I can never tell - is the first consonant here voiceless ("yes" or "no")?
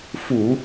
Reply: yes